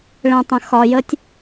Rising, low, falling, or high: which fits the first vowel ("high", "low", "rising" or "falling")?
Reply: low